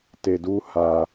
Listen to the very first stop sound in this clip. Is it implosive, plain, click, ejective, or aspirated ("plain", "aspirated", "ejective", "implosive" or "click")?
plain